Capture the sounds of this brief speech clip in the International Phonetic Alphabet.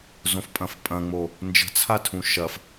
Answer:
z õ f pʼ ɐ̃ f pʼ ɐ̃ ŋ͡m o | n d͡ʒ ə̤ t͡sʰ a tʰ ũ ʃ ɐ f

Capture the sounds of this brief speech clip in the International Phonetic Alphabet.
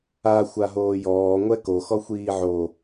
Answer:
a xʷ a ɦ oː j ɔː ŋʷ ɛ k o x ɔ xʷ iː ʕ o

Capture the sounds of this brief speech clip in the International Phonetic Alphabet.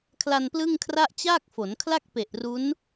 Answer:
kʰ l a˧ n p l ɯ˥˩ ŋ kʰ r a˥˩ ʔ t͡ɕ aː˥˩ k̚ f o˩˦ n kʰ l a˥˩ k̚ p e˨˩ ʔ r u˦˥ n

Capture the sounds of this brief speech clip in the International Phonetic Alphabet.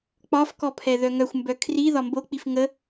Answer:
k͡p ɒ f k ɔ pʰ ɛ ð œ ŋ œ xʷ m b œ kʰ r i ð ɒ m b o k͡p i f ŋ ə

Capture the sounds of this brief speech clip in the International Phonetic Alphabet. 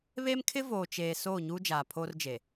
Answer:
β e˦ m kʰ ɪ˦ v oː˨ t͡ʃ eː˨ s oː˦˨ ɲ uː˦ d͡ʒ aː˨ pʰ o˦ r d͡ʒ e˨

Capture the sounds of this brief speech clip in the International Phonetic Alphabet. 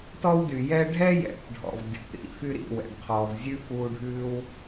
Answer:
t ɔ˥ w d y˩ j ɛ˥ ɖʱ ɛ˥ j ɛ̰˩˥ p ɖʱ ɔ̰˩ v dʲ ɔ̰˩ p ɾ ḭ˧ f y˥ ɾ ḭ˥˩ w ɛ̰˩ ɖ qʰ ɔː˩ v zʲ ʉ˥ f uː˧ ɖʱ ʉː˥ w

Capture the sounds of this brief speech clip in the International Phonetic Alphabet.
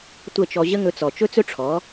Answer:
tʷ ə˦˨ t͡ʃ ɔ˧ ʑ ə˦ ŋ ɵ˧ t͡s ɔ˨ t͡ʃ ɵ˦ t͡s ɵ˦ ʈ͡ʂʰ ɔ˨˦

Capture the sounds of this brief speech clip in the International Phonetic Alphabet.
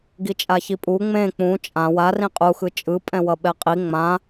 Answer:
ɡ i t͡ʃʼ a ç i pʼ u ŋ͡m ẽ k͡p ũ t͡ʃʼ ã w a r ĩ qʼ u x ɯ t͡ʃʼ ɯ pʼ ɛ̃ w ʌ ɓ ɛ qʼ i ŋ͡m ã

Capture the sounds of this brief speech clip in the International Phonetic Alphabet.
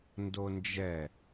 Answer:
n d o n d͡ʒ ɛ

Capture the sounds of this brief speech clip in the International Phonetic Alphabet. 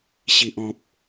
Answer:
ɕ i˨ ʔ ɔ̃˨ p̚

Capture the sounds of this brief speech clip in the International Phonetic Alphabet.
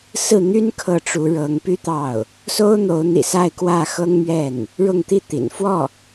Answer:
s ɹ̩˥˩ n̪ y˥ n kʰ ɤ˥˩ ʈ͡ʂ u˧˥ ɻ ɤ˧˥ ŋ p y˥ t̪ ɑ˥˩ ʊ̯ | s o˥ ʊ̯ n̪ o˧˥ ʊ̯ n̪ ḭ˨˩ s a˥˧ ɪ̯ k w ä˥˩ x ɤ˥ ŋ m ɥ ɛ˥˩ n | ɻ ʊ˥˧ ŋ t̪ i˥˩ t̪ ḭ˨˩ n f w ɔ˥˩

